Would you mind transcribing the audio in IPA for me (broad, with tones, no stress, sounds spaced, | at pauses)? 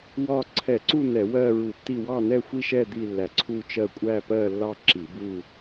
w ɒ˥˧ ǀʰ ɛ˧˩˧ ǀ u˥˧ n ɛ˧˩˧ w ɜ˥˧ ɹ u˧˩˧ tː i˥˧ w ɑ˥˧ n ɛ˥˧ xʷ i˥˧ ʃ ɛ˥˧ d̪ i˥˧ lː æ˧˩˧ ǀʰ u˥˧ t͡ʃ ɜ˥˧ kʷʼ æ˥˧ p ɜ˥˧ lː ɑ˥˧ ǁ i˧˩˧ b u˥˧